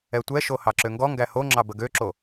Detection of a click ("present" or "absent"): present